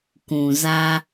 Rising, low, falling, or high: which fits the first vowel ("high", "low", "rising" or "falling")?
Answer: low